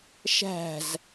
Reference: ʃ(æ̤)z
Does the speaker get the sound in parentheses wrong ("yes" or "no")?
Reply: no